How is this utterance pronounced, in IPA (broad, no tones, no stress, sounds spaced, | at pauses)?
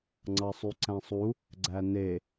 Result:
ŋ͡ǀ ɑ sˤ y ǀ æ̃ sˤ u | ɡ͡ǀ æ n e